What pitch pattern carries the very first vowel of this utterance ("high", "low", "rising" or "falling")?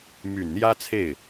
low